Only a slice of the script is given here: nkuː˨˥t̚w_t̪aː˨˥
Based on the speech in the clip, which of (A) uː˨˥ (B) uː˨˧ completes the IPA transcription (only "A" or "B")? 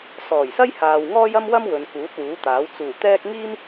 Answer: A